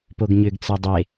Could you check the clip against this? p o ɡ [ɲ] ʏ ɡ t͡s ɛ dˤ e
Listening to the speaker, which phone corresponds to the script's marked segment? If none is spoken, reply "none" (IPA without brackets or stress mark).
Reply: ɲ